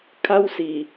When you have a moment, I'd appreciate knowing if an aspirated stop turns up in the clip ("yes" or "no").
yes